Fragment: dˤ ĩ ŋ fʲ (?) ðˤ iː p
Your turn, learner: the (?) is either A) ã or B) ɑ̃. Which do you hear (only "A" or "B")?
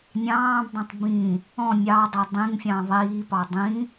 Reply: B